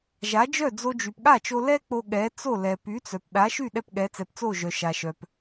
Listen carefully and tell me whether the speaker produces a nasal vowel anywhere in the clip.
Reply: no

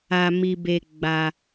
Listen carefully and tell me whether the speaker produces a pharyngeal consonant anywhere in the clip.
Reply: no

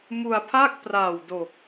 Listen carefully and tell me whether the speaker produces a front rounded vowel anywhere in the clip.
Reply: no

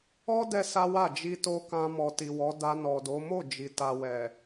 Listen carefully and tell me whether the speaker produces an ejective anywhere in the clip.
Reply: no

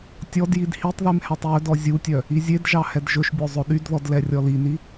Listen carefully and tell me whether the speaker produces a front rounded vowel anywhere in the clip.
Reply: yes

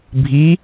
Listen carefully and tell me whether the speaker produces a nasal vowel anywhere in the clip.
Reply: no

